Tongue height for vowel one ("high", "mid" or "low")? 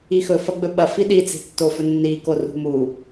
high